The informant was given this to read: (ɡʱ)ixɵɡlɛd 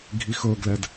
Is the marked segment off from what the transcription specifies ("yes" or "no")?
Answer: no